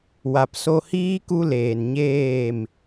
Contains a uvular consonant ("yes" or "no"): no